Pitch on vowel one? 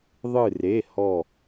falling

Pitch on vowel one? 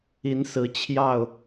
rising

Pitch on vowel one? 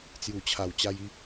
low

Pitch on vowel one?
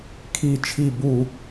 falling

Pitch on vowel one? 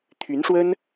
rising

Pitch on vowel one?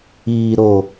low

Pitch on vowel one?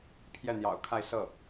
falling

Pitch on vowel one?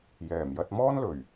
low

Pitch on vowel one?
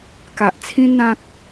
low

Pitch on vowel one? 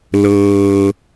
low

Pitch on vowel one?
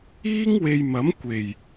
high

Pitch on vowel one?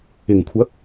low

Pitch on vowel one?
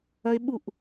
high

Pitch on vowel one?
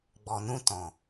low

